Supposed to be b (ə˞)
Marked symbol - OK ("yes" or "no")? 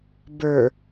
yes